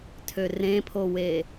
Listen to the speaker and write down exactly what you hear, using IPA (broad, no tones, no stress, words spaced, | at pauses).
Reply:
tʰørẽpʰowe